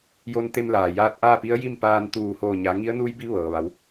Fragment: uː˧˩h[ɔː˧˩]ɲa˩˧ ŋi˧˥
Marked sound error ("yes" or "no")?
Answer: yes